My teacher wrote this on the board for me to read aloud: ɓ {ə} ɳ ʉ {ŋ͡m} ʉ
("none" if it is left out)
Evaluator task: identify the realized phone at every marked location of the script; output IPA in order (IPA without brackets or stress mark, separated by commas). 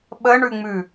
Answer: ə, ŋ͡m